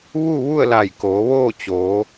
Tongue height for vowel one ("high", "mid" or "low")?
high